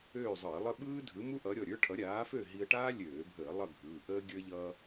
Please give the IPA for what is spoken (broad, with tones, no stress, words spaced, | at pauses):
øː˥˨zˤɯ˧˩˧ɪ̯lˠə˥ ɓɯː˥dʱɯ˨˥mu˥ ʔʌ˨˥ ɾʲɔ˩˧˩ɾʲə˞˥ʈʰʌ˨˥ ɾʲaː˨˥fø˥˨ ɦi˧ə̯ʈaː˥lʲøː˧˩˧bʱəː˧˩˧ lˠʌ˥˨ɡʱɯː˩˧˩ ʔəː˥ɡʲə˞˥ ʎʌ˧